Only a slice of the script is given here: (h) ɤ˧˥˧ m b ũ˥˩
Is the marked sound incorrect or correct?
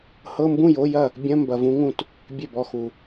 correct